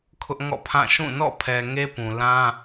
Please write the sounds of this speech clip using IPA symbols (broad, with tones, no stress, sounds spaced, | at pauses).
kʰ ʊ˦ ʔ ŋ ɔ̰˦˨ pʰ ã˦˨ ʃ ũ˦˨ n ɔ̰˦˨ pʰ ɛ˨ ŋ e˦ p ũ˨ l ã˦